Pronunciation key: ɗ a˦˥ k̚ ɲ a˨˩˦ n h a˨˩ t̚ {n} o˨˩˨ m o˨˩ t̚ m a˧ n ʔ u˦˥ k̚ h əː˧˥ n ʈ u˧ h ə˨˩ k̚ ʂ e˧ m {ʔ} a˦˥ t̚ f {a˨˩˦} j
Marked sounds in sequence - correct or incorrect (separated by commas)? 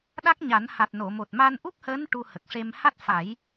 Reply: correct, incorrect, correct